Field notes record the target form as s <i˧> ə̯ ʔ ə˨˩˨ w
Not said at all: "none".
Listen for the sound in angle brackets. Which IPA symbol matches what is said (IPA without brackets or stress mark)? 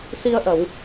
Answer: i˧